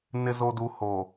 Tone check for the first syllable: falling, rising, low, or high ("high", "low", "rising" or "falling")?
low